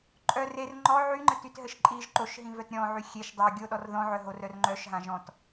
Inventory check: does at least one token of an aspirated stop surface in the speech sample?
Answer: no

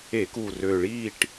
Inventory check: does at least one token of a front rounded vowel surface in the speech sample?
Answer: yes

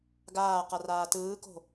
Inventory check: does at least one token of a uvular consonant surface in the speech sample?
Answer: yes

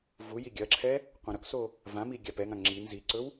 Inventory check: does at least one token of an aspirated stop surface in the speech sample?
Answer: yes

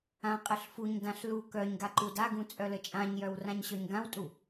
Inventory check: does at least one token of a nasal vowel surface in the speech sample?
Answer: yes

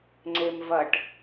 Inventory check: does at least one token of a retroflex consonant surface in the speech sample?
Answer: yes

